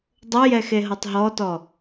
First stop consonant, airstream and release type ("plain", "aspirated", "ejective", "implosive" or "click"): plain